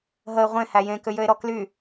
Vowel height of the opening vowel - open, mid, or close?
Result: mid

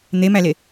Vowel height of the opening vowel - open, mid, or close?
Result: mid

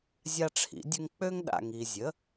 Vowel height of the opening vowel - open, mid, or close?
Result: open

